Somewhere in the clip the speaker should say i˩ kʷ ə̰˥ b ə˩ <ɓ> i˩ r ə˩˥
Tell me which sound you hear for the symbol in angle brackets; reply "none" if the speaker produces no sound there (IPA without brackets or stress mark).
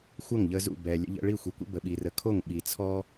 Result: ɓ